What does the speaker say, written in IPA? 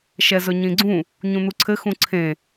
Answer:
ʃ ɛ z ɵ ɲ ĩ ɡ͡ǀ ũ | ɲ ũ n̪ u ǀʰ ɘ x ũ ǀʰ ẽ

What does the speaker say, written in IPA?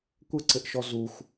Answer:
kʷ ɘ ǀ ɘ ʔ ʃ ɔ z u xʷ

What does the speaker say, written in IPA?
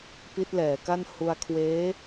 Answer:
p i˦˥ t̚ l ɛː˩˦ k a˥˩ n h u˧ a̯ kʰ w eː˦˥

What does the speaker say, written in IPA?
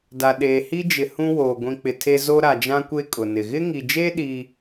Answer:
d a˨ ɗ eː˨ h i˦ d͡ʒ ɪ˨ h ũ˦ w oː˨ ɡʷ ĩ˨ k͡p ɪ˨ tʰ e˦ z o˦ ɾ a˨ d͡ʒ ã˦ kʷ e˦ kʼ ʊ˨ n ɪ˨ ɣ ɪ˦ ŋ i˨ d͡ʒ e˦ ɗ iː˦

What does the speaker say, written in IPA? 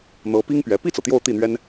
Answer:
n̪ ɤ˧˥ p i˥ ŋ p ɥ ɛ˧˥ p i˥˩ t͡s ɤ˩ t̪ j o˥˧ ʊ̯ t̪ i˥˩ n̪ ɥ ɛ˥ n

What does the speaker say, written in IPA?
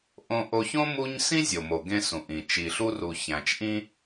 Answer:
ʔ õ˧ ʔ o˧ ç õ˥ m u˥ ɲ s ĩ˥ zʲ o˩ m o˩ ɡ ẽ˧ s ũ˩ ʔ ĩ˩ t͡ʃ i˩ ɬ u˧ r u˩ ç æ̃˩ t͡ʃ ʔ ĩ˧

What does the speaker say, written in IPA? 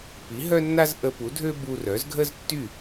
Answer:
p i˩˥ ɦ œ˥ nː a˥ z ʔ ə˧ p u˩˥ dʱ ø˥ b u˧ r œ˩˥ z ɡʱ ə˥ z tː y˥˩

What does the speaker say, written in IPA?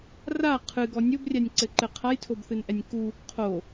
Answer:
r a qʰ ɨ ɡ ɔ nʲ o b rʲ a nʲ ǀ ɘ ǃ ɘ qʰ a j tʰ o b θ ɨ n ʔ ɛ nʲ k u | qʰ o

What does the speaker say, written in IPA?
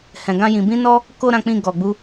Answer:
h ɛ̃˨ ɡ ã˧ j ĩ˨ b ĩ˧ n ɔ˧ | k o˧ ɾ ã˧ k͡p ĩ˧ ɡ ɔ˨ ɡ͡b u˧

